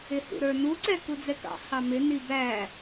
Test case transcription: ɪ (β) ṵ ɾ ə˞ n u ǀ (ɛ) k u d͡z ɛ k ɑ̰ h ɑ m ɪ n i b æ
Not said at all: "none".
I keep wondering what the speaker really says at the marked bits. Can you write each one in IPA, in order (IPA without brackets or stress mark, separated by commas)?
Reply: h, ɛ